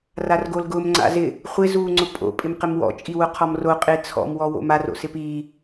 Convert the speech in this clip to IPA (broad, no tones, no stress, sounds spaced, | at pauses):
r a r ɡ o l ɡ ʊ m ŋ͡ǀ a̰ z ɪ | χʷ ɪ z uː ŋ͡ǀ ʊ pʼ o̰ pʼ ɪ m q ɪ m w ɔ̰ t͡ʃʼ i w ʊ qʰ ɔ m r o qʼ e t͡sʰ ɔ̰ m w ɔ w o̰ m a r o̰ s ɪ p iː